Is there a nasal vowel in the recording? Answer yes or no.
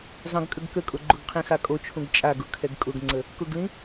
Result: yes